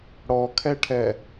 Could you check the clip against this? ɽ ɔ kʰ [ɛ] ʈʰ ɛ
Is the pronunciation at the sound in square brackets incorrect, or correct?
correct